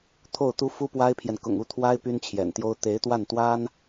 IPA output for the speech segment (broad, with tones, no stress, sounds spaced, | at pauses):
t̪ʰ o˥˩ ʊ̯ t̪ u˥ f u˥ p w a˥ ɪ̯ pʰ j ɛ˨ n k ʊ̰˨˩ ŋ u˥˩ t̪ʰ w a˥ ɪ̯ p y˥ n t͡ɕʰ j ɛ̰˨˩ n t̪ j o˥ ʊ̯ t̪ e˧˥ ɪ̯ t̪ w a˥˩ n t̪ w a˥ n